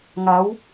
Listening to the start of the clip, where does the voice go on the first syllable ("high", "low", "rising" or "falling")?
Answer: rising